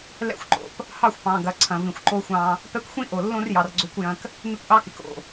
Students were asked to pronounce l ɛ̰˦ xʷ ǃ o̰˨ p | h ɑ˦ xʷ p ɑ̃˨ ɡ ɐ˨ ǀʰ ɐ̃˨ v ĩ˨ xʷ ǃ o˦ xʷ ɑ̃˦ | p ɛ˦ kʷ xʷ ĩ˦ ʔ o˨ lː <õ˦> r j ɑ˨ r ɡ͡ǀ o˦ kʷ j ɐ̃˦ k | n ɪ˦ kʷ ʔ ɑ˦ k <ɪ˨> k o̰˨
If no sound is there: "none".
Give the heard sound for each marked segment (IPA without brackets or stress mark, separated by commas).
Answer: õ˦, ɪ˨